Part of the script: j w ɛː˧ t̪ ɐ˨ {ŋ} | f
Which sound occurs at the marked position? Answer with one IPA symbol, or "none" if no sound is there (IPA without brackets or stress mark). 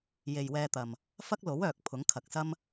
m